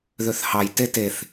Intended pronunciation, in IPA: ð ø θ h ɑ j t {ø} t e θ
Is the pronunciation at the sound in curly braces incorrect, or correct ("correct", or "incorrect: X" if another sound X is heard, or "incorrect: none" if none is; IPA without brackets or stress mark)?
incorrect: e